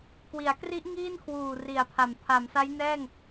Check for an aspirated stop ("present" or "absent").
present